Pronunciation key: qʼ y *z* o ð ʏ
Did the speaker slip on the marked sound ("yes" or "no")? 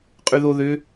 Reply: yes